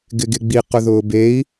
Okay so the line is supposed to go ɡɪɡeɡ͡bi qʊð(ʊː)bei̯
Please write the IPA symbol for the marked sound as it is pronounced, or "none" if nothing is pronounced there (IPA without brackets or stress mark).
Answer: ʊː